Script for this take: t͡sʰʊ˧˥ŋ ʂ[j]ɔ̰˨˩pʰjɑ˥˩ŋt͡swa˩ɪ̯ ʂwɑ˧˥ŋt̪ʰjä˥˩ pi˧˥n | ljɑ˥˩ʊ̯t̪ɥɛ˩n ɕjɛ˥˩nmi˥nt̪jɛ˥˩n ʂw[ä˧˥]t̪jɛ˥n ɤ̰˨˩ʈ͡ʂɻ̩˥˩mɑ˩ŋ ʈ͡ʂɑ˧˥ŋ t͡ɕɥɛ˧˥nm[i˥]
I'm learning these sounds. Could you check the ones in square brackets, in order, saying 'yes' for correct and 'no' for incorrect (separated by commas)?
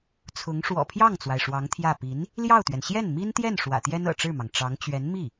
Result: no, no, no